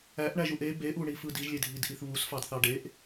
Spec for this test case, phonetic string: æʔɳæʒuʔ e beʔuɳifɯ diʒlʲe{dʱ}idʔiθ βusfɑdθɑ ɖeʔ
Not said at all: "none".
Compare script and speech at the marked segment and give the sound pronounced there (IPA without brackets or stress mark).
dʱ